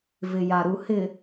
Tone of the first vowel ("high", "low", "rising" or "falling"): low